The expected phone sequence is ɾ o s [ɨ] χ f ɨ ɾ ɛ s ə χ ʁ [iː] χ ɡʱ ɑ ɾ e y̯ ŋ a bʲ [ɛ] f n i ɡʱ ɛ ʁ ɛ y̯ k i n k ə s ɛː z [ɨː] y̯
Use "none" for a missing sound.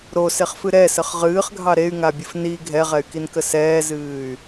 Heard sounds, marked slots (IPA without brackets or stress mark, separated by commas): e, ɨː, ɨ, ɨː